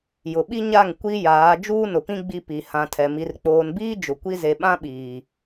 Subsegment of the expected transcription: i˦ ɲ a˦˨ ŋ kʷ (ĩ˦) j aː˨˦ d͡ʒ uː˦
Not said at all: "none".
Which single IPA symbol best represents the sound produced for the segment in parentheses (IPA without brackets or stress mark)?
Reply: i˦